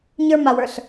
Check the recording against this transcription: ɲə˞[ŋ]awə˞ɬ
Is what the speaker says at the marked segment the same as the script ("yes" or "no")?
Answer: no